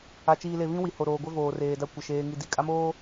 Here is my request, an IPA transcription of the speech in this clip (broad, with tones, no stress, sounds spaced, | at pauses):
a˨ t͡ʃ iː˨ l e˨ β ĩ˦ w i˨ h o˨ ɾ oː˨ ɡʷ ɛ˦ v oː˨ r eː˨ d a˦ kʷ ɪ˨ ʃ eː˦ ŋ i˦ d i˨ kʼ a˦ m oː˦